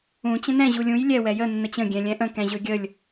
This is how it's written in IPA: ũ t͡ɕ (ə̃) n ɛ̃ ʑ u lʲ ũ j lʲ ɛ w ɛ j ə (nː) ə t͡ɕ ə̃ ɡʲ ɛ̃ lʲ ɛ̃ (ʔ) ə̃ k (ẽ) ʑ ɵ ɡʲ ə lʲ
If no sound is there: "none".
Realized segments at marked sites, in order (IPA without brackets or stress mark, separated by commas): ə̃, nː, ʔ, ɛ̃